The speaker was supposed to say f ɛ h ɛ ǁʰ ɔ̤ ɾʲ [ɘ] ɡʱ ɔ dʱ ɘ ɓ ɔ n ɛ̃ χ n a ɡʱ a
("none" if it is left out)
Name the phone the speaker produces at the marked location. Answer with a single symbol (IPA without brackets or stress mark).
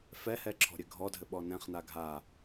ɘ